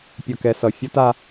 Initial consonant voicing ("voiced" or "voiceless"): voiceless